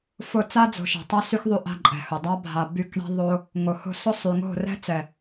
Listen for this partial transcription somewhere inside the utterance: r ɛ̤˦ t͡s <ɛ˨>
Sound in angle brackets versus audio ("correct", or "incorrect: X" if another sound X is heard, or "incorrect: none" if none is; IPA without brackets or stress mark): correct